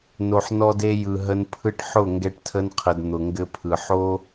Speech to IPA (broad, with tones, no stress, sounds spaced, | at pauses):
n o˨ ħ n ɔ˧ d e˧ j ɯ˨ ɦ ə˧ n pʰ ɯ˦ ʈ ħ ʊ˦˨ ŋ ɡ ɛ˧ ʈ tʰ ə˧ n qʰ ə˨ d n̪ ʊ˨ ŋ ɡ ɘ˧ pʰ ɯ˨ ħ o˦